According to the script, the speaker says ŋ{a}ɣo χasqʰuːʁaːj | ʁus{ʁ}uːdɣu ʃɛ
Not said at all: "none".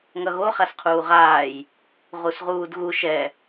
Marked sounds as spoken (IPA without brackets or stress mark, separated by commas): ʌ, ʁ